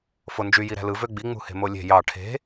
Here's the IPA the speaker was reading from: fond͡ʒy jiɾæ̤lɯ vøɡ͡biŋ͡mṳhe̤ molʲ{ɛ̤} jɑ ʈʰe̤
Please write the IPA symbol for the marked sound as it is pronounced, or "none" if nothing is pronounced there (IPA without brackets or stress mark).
e̤